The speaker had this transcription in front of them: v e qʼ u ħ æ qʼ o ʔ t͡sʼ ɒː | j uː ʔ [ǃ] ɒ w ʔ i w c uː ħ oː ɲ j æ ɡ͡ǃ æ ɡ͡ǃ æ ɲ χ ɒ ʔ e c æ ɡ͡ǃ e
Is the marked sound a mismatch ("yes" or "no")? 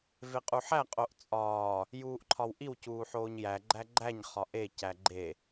yes